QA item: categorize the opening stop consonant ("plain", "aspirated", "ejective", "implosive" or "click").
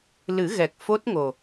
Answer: plain